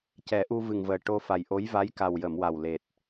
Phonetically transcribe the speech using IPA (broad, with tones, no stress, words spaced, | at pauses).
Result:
cɛ˨˩˦ʔu˧vɨ˨˩ŋvəː˨˩ ʈo˧fa˨˩jʔo˧˥j va˧˥jka˨˩wjə˨˩˨m wa˨˩wle˨˩t̚